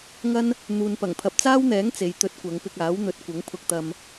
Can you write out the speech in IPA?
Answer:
ŋɐ˥n | n̪uː˨npɐ˨˩ŋpʰɐ˧p̚ t͡saː˥wn̪ɛː˨˥ŋ t͡se˨˧jt̪ɵ˧t̚kʷɐ˨˧ŋ pɪ˧k̚aː˨˥wn̪ɵ˨˥t̚ kʷɐ˨˥ŋpʰʊ˧k̚t̪ɐ˧m

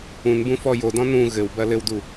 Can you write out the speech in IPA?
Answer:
ũnbũfɔ jodɔ̃ nũ ɣɘwbɐ lɘwdu

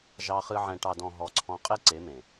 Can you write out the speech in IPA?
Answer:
ʒɑ˧χɨ˧ ʕɛ̃˨ʈɑ˨dɔ̃˨ ɦɔ˨˦ǀʰɔ̃˧ qʼe˦ǀe˨˦mẽ˨

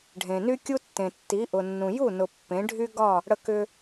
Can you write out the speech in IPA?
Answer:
ɖʱẽ˩ny˥kʲu˥tːẽ˩ tːi˩˥ʔʊ˩nːũ˩ ju˥˩nʊ˩ pːẽ˩˥ɖʱy˥ɡɒ˥˩ | ɽə˧kʏ˧

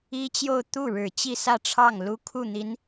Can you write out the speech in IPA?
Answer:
i˥t͡ɕjo˥˧ʊ̯ t̪u˥˩ɻɻ̩˨˩ t͡ɕi˥˧sä˥˧ʈ͡ʂʰɑ˥˩ŋ lu˥ kʰu˥˩n̪i˧˥n

